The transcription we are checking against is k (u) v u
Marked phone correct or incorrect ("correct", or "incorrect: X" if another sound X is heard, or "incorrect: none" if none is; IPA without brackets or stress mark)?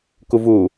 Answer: correct